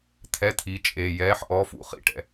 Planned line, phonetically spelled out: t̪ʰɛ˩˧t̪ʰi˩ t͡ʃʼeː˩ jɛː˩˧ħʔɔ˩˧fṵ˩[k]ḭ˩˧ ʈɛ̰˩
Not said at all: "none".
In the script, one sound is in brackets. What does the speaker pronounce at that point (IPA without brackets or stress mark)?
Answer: χ